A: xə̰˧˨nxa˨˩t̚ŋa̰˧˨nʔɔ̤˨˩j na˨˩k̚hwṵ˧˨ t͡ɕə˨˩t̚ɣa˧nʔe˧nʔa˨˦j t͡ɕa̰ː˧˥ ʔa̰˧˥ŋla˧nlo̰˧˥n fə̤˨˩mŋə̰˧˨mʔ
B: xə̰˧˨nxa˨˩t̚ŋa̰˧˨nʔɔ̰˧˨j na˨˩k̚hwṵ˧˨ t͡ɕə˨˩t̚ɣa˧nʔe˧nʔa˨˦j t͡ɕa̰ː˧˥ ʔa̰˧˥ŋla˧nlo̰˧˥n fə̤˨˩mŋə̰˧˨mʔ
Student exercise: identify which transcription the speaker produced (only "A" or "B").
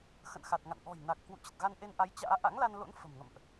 A